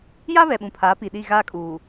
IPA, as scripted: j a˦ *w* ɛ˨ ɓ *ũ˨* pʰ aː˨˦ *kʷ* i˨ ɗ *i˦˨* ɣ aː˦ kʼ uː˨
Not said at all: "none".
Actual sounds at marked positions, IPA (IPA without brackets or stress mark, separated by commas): β, ũ˨, p, i˦˨